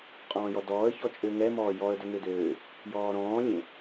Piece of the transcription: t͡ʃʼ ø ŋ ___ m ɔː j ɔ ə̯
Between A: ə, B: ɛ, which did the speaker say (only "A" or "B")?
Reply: B